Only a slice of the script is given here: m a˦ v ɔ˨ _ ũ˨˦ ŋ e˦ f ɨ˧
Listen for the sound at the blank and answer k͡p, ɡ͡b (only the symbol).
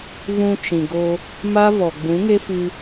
ɡ͡b